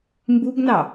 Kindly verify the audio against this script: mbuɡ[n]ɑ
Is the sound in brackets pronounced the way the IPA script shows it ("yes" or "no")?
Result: yes